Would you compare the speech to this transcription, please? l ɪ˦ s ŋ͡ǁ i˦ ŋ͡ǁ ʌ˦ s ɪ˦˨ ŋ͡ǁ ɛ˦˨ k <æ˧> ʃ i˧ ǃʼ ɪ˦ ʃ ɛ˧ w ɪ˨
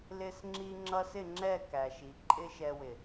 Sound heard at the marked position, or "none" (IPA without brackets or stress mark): æ˧